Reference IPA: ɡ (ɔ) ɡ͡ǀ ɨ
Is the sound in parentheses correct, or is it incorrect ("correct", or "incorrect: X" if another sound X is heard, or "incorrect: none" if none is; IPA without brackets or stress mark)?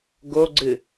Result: incorrect: o